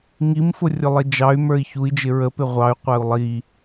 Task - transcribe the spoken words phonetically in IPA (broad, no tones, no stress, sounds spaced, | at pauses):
ŋ i m f ʊ rʲ ʊ lˠ i d͡ʒ ɑ y̯ m ə˞ i̯ ç u i̯ d͡ʒ ɪ ɹ ə p ɪ ʁʷ ɑ y̯ qʷ æ u̯ lˠ i